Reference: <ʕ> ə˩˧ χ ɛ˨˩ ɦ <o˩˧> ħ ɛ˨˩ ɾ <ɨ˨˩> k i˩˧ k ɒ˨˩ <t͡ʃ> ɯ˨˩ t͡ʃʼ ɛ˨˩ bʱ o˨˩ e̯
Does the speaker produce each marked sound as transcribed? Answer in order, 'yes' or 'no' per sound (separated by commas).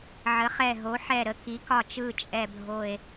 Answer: yes, yes, no, yes